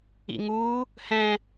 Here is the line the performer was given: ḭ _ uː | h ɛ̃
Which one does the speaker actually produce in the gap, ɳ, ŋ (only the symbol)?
ŋ